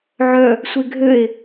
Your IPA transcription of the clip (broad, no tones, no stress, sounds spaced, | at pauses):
ʕ œ | sʷ e ɡʱ ø e̯